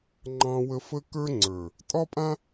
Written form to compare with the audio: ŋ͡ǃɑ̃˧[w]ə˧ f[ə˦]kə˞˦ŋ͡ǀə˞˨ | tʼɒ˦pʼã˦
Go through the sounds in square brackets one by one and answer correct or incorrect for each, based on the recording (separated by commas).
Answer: correct, correct